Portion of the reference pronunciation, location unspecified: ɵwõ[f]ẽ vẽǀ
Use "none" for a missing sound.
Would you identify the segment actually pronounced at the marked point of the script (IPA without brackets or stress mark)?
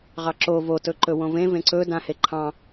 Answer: v